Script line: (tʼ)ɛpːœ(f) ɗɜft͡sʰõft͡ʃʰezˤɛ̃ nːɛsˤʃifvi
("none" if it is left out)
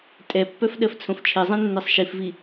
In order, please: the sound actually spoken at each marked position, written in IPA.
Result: tʼ, f

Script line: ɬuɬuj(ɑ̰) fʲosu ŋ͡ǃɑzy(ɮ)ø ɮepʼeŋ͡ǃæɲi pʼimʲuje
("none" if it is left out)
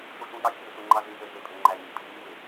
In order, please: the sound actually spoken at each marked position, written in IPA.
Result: ɑ, z

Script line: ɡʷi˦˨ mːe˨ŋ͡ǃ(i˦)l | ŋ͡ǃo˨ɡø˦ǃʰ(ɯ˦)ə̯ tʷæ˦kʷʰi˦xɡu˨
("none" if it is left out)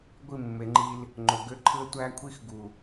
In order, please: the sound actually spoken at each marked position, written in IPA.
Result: i˦, ɯ˦

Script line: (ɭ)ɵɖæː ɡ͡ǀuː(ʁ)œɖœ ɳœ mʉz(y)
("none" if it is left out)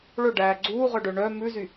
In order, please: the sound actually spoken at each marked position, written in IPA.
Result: ɭ, ʁ, y

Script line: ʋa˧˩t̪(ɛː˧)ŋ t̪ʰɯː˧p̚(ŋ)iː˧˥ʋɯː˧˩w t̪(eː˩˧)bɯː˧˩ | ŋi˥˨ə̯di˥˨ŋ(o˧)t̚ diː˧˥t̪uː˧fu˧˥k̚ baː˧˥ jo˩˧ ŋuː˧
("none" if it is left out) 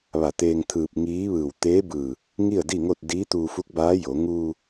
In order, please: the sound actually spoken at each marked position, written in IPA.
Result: eː˧, ŋ, eː˧˥, o˥˨

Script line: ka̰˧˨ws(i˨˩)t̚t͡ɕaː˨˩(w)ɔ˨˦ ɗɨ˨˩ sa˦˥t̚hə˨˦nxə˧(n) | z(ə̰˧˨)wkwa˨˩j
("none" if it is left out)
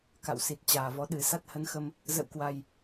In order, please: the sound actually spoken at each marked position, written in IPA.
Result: i˨˩, v, m, ə̰˧˨

